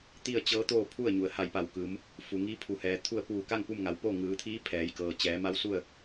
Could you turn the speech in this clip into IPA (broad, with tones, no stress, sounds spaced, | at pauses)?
t̪ i˥˨ ə̯ t͡ɕ ɤː˧˥ t̪ oː˥˨ pʰ u˥˨ ə̯ ɲ u˩ ə̯ h a˧˩ j p a˧˩ w k ɯː˩˧ m | f u˩ ŋ iː˧˥ pʰ u˩ h ɛː˩ t̪ʰ u˥˨ ə̯ p uː˧˩ k a˥˨ ŋ p u˥˨ m ŋ a˩˧ w p oː˥˨ ŋ ɯː˩˧ t̪ʰ iː˧˥ pʰ ɛː˩˧ j k ɤː˩ t͡ɕ ɛː˩˧ m a˧˥ w s u˥˨ ə̯